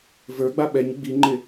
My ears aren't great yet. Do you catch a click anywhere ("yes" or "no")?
yes